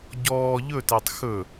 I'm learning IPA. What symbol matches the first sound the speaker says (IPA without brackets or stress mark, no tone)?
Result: ɟ